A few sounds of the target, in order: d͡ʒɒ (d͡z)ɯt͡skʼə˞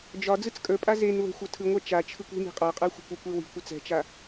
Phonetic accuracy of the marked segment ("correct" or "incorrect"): correct